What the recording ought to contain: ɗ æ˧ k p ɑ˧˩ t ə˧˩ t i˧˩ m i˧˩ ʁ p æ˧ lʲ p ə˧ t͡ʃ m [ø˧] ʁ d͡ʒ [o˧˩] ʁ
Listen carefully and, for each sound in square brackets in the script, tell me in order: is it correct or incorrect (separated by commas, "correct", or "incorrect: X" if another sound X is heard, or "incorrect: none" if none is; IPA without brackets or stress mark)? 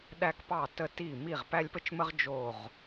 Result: incorrect: ə˧, correct